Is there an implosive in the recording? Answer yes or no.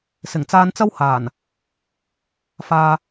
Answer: no